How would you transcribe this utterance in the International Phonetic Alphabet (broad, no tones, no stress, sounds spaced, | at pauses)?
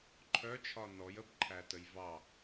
ǃʰ œ t͡ʃʰ ɒ n ɔ j ə b ǃʰ æ t ə j v ɑ